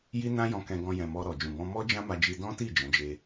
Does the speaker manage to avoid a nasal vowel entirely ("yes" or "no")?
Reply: no